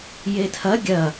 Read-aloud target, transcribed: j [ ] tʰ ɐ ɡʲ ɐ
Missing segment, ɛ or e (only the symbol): e